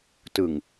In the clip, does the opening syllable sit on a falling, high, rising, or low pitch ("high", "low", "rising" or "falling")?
low